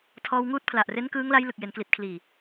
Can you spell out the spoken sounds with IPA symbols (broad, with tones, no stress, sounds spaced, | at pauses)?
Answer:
tʰ ɔː˧ w ŋ uː˦˥ t̚ pʰ l a˨˩ ʔ r e˦˥ n k ɯː˦˥ ŋ l a˦˥ j l ɯ˨˩ k̚ j e˩˦ n k l i˨˩ t̚ kʰ l iː˨˩